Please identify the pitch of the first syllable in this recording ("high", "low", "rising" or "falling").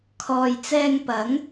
low